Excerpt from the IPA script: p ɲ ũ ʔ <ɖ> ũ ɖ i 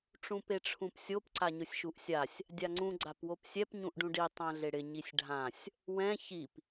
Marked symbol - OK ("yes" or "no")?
yes